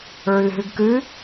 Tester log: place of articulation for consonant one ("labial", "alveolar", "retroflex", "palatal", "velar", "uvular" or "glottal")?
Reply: alveolar